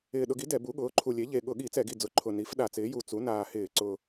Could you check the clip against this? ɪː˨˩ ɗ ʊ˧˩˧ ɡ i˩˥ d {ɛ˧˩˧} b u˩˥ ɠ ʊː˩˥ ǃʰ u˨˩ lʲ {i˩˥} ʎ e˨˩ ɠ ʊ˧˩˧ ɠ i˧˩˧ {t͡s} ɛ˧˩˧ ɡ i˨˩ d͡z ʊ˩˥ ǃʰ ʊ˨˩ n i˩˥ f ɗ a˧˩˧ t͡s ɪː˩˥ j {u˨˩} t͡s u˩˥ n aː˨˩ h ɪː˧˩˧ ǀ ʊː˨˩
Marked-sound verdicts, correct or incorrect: correct, incorrect, correct, correct

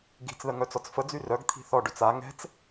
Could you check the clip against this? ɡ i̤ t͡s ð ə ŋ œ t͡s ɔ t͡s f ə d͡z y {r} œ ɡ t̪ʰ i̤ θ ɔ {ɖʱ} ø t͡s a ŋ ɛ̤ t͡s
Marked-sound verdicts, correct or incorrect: correct, incorrect

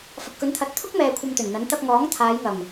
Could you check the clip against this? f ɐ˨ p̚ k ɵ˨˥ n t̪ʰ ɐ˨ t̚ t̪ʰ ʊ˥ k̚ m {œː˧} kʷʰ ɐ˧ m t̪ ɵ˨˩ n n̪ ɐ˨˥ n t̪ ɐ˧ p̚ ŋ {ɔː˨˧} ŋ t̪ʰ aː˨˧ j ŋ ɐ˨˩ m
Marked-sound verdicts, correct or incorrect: incorrect, incorrect

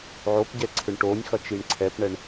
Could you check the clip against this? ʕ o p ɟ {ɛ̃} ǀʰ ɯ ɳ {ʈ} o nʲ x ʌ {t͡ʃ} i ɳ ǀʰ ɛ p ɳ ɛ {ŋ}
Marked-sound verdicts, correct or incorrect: incorrect, correct, correct, incorrect

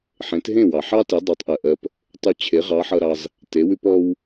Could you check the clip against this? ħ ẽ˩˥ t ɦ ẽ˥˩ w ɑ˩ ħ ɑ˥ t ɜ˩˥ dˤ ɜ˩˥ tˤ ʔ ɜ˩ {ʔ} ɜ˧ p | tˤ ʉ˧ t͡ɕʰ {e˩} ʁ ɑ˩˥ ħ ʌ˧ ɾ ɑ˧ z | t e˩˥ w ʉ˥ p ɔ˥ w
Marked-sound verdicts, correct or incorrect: correct, incorrect

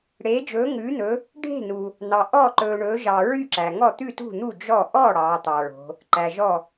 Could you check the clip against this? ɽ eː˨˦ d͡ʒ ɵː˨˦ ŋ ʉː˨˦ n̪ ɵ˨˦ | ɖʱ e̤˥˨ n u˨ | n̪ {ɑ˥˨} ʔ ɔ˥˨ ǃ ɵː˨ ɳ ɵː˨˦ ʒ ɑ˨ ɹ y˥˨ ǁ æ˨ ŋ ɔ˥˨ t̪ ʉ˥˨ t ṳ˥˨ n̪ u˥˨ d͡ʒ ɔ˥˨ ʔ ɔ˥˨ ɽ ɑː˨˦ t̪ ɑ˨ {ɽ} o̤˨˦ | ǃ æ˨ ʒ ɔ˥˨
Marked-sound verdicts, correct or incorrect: incorrect, incorrect

